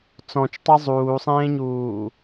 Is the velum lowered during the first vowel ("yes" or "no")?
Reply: yes